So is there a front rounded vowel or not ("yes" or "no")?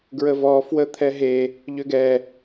yes